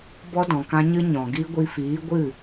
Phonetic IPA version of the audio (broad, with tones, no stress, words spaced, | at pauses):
bɔ˦dɔ̃˨kã˦ɲɨ˦ ɲɔ̃˨ɡi˦ ɡʷi˧fiː˨˦ ɡʷɨ˦˨